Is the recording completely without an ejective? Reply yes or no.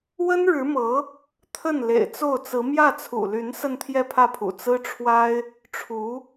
yes